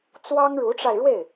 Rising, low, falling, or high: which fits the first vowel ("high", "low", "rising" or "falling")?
high